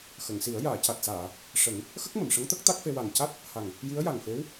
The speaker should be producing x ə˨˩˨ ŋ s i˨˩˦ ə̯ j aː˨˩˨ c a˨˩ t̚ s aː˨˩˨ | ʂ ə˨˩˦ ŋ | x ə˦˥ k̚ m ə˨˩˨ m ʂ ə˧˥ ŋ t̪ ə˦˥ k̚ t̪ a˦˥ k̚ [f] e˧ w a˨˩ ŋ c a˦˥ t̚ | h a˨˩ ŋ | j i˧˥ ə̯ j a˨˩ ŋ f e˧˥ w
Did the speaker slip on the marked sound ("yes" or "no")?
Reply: no